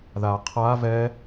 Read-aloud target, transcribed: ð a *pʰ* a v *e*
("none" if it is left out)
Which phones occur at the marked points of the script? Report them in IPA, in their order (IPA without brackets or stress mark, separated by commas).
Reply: qʰ, ɛ